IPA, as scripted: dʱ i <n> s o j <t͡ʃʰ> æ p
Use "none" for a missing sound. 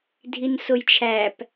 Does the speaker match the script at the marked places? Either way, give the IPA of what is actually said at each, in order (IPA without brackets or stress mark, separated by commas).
n, t͡ʃʰ